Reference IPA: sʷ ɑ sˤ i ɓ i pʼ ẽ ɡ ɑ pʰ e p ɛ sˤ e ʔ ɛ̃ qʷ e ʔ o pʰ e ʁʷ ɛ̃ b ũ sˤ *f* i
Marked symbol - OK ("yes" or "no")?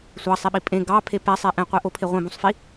yes